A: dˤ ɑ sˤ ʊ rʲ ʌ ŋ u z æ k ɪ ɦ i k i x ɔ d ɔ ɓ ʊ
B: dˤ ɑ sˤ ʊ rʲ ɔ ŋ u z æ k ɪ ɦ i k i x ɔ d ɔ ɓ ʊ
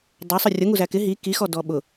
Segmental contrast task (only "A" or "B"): A